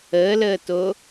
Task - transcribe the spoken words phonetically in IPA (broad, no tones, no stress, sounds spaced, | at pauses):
əː l əː t o